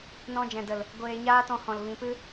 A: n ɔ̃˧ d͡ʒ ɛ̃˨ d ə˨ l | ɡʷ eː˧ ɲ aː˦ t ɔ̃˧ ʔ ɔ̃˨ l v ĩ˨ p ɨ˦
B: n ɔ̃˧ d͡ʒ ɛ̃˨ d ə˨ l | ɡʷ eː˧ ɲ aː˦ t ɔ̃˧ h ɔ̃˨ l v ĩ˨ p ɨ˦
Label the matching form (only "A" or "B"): B